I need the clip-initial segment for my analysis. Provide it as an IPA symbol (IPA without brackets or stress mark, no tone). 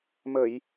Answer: m